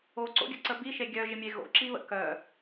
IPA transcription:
oǀo̰ɡʲə̰ǀə biʃe ɡʲœʒɪmʲe ɣo̰ǁiβə̰ kœ

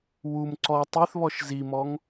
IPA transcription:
wum ǀɔ tˤyθβɔʃ zimɔŋ

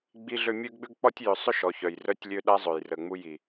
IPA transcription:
ɡ͡bi˦ɮø˦ mʲø˦ɡɡ͡bʏ˦ɡ k͡pɔ˦tʲjʏ˨˦ sˤʏ˦˨ʃɔ˨ çœ˨jrœ˦tʲ lʲø˦ɗa˦zˤø˨jrə˨ ŋ͡mu˦ ji˨

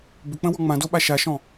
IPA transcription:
bʏk͡pə̃wɔ ŋ͡mãdoɓa ʃaʃɔ̃

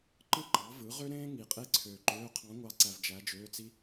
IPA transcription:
ǃɯ˥ǃɑ˩˥vɯ˩˥ ʁø˥ɾẽː˥ ŋi˨˩˦qʼe˥ǀʰøː˨ǃøː˧˥˧ qʰɑ̃˧˥ŋʷɑ˧˥ǀæ˨v d͡ʒæ˧˥d͡ʒøː˧˥˧t͡si˥

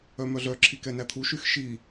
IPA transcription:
œmœɮœ ǁʰikɛnæt̪ʰu ʃyxʃi

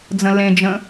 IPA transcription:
d͡zə̃lẽd͡ʒə̃

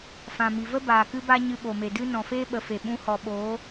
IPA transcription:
fã˨mi˨və˦ baː˨kɨ˦ba˦ ɲɨ˧ɓo˨me˨dɨ˦ nɔ̃˨feː˦ɓə˨fe˨ ɓũ˧hɔ˨ɓoː˨˦

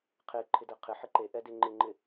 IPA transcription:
qʰeǃʰɪdɛ qʰɪħɪ ǃeʔɛde ŋ͡ǃɪŋ͡ǃɪ

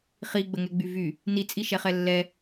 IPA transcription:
χiɡ͡bəŋɛɡ͡by vy | nit͡sʼiʃɛχɛ lːɛ

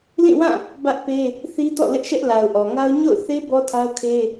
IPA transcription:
lĩ˦˨wã˦˨ | bä˦ʔpe˦ | θi˦ tɔ̰˦˨lɪ˦ʔʃɛ˦ʔ la˨ʊ̯ʔɔ˨ŋa˦ʊ̯ ɲo̰˦˨ʊ̯θe˦ bɔ˦tʰa˦ʊ̯kʰe˦

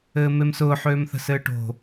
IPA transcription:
ɘːmemsʊː ħøːmθə̤sɘːʈo̤

